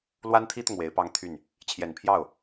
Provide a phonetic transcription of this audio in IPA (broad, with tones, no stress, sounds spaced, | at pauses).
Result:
l w a˥ n t̪ʰ i˥ t̪ ʊ˨ ŋ w e˧˥ ɪ̯ p ɑ˥ ŋ t̪ʰ y˥˩ n | t͡ɕʰ j ɛ˨˩ n pʰ j ɑ˥˩ ʊ̯